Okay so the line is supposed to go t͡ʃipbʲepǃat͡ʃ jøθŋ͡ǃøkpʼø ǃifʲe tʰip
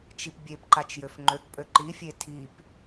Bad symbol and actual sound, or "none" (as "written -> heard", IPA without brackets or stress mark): θ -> f